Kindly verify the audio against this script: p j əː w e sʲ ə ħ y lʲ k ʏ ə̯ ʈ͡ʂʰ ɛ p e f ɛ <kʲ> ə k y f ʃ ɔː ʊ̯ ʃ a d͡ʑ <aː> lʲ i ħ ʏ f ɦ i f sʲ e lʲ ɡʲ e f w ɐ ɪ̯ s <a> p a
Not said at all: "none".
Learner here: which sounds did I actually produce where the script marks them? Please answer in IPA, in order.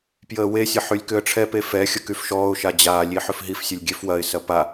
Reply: xʲ, aː, ɐ

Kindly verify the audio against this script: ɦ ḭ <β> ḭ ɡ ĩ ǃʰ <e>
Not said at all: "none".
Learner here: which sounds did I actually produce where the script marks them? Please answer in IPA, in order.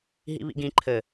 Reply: β, ɘ

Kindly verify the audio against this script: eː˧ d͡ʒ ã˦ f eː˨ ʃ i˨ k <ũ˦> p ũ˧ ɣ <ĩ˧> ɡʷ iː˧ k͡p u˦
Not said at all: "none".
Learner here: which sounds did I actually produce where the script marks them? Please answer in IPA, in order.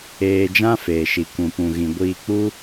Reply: ũ˧, ĩ˧

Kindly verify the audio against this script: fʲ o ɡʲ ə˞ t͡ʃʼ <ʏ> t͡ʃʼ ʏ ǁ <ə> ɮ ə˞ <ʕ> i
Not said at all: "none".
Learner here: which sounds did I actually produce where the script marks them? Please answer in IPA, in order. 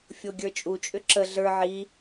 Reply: u, ə, ʕ

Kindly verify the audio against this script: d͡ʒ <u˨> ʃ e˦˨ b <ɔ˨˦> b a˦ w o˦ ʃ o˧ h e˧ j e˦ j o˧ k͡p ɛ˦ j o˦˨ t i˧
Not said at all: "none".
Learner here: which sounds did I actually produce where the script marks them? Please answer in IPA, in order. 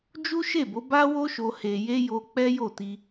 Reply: u˦, o˨˦

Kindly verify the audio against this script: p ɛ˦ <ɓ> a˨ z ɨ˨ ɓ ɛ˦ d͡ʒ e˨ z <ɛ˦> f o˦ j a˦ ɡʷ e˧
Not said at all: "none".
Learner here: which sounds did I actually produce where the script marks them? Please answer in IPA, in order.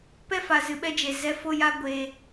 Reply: f, ɛ˦

